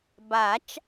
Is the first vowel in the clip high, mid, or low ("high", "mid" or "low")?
low